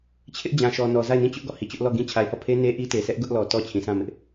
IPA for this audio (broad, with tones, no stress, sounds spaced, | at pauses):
t͡ɕʰ ɪ˦ ʔ d͡ʑ ã˨ ʃ ɔ˨ n ɔ˨ z a˦˨ ɪ̯ n ĩ˦˨ t͡ɕ ʊ˦ ʔ ɡ ɔ˦˨ h i˨ t͡ɕ ʊ˦ ʔ l ɔ˦˨ ɡ ĩ˦ t͡ɕʰ a˨ ɪ̯ h ɔ˦˨ pʰ e˦ n e˦ ʔ i˦ t e˨ sʰ ɛ˦ ʔ ɡ ʊ˦ ʔ l ɔ˨ t ɔ˦˨ t͡ɕʰ ĩ˨ sʰ ã˦˨ m ɪ˦ ʔ